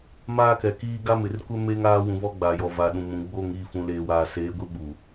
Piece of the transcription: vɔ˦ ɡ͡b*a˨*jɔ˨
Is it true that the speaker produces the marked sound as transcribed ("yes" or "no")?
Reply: yes